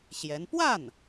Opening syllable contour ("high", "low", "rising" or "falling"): rising